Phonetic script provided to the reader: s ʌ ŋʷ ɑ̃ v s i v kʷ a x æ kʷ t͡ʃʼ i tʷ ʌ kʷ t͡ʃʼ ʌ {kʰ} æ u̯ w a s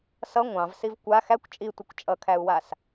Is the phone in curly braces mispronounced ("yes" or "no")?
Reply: no